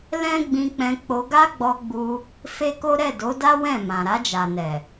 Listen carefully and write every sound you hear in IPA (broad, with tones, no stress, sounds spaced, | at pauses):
l ɛ̃˦ ɡ͡b ĩ˧ k͡p ɛ̃˧ k͡p o˧ ɡ a˦ ɡ͡b ɔ˧ ɡ͡b u˧ | f e˦ k o˦ ɾ ɛ˦˨ d o˨˦ d a˦ w ɛ̃˦˨ m ã˨ ɾ a˧ d͡ʒ a˨ n ɛ˨